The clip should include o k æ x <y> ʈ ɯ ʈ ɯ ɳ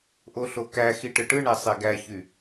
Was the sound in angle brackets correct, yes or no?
no